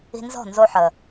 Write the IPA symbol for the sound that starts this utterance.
i̤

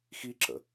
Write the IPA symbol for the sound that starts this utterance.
x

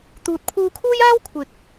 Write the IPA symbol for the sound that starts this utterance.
t̪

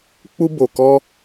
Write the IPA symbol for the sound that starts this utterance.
k͡p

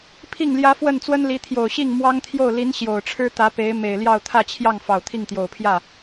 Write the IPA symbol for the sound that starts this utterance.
pʰ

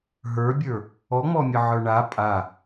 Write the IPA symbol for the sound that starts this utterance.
ɦ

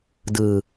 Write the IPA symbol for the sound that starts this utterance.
d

